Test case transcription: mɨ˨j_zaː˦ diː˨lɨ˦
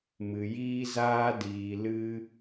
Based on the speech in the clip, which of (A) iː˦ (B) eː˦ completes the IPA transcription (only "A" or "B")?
A